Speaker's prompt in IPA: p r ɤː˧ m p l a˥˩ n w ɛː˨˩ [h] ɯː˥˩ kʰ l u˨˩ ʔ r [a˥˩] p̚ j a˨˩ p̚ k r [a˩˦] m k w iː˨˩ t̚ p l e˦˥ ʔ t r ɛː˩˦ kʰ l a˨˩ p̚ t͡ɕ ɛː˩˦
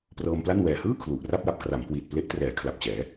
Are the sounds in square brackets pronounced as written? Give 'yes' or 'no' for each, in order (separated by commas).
yes, yes, yes